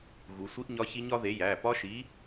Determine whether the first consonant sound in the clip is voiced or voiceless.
voiced